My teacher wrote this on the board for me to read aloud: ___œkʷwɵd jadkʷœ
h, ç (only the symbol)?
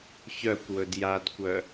ç